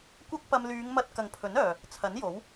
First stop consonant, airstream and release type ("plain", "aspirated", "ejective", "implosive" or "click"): plain